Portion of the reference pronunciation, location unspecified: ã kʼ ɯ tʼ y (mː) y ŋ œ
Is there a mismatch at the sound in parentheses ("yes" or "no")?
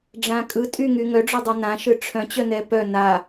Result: yes